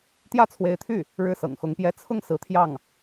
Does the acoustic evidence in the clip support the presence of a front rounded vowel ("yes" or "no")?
yes